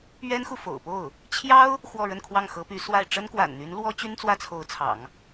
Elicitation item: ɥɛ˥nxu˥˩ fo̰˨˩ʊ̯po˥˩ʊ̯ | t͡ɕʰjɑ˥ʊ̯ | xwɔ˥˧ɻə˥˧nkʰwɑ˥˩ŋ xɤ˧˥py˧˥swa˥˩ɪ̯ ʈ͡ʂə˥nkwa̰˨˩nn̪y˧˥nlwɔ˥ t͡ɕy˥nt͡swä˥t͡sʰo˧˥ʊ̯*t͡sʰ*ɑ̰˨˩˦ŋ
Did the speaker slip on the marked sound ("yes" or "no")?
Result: no